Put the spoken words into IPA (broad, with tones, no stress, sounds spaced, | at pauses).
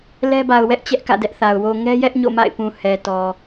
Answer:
l ɛ˦ b a˨ ʊ̯ w ɛ˦ ʔ t͡ɕ ɛ˦ ʔ k ä̰˦˨ d ɛ˦ ʔ θ a˨ ʊ̯ w o˨ ŋ ɛ˦ j ɛ˦ ʔ ɲ o̰˦˨ m a̰˦˨ ɪ̯ p ũ˨ h ɛ˨ t ɔ˨